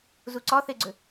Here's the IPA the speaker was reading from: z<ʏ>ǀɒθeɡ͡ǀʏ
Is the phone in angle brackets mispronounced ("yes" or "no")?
yes